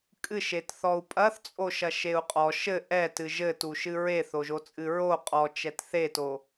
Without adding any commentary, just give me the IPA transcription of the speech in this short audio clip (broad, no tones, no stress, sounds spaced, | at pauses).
kʼ ɨ ʃ e t θ ɔ u̯ pʼ ɐ θ t͡sʼ o ʃ ɐ ʃ e u̯ qʼ ɔ ʃ ɘ ʔ ɛ t ɨ ʒ ɘ t u ʃ ɨ ɹ e θ o ʒ o t͡sʼ ɨ ɹ o qʼ ɔ t͡ʃ ɛ t θ e t o